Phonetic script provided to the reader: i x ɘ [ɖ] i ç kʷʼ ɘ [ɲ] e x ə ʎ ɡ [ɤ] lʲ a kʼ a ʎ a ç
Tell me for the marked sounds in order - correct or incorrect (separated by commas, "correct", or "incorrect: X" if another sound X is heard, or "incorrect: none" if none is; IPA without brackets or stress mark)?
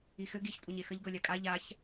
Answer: incorrect: ɡ, correct, correct